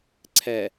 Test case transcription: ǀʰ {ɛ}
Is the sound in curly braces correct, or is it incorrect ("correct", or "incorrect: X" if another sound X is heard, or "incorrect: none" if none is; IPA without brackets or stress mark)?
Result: correct